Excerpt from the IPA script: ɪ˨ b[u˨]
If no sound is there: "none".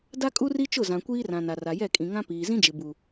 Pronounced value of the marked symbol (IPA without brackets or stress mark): u˨